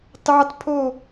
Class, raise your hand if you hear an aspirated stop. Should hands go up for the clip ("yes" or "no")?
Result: yes